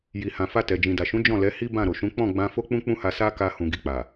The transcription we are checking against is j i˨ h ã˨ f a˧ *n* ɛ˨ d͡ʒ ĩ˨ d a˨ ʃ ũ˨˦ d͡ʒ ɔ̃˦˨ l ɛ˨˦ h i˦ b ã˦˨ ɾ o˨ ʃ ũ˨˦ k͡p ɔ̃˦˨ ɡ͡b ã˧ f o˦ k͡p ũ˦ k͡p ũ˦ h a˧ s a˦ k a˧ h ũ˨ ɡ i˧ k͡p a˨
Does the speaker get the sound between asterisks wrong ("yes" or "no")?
yes